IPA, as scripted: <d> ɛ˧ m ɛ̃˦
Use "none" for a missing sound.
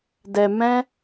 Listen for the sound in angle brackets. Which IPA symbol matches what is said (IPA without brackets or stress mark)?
d